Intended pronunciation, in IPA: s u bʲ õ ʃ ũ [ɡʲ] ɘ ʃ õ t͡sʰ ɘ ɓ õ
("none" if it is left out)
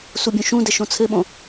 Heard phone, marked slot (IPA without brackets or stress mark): d